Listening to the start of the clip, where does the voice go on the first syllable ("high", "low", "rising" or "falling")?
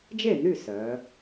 falling